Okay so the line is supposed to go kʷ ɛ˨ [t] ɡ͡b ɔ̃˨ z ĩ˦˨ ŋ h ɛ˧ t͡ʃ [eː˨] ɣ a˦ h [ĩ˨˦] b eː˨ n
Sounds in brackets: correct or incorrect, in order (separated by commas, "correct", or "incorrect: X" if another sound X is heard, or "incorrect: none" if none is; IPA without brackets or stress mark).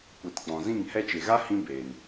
correct, incorrect: e˨, incorrect: ĩ˧